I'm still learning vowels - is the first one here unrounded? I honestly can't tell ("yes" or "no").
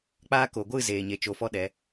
yes